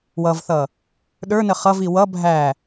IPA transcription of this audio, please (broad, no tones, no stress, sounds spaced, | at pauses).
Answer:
w ʌ v θ ʌ | ɗ ə˞ n ə χ ʌ v i w ʌ bʱ æ